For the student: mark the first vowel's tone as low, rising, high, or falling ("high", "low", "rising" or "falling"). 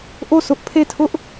falling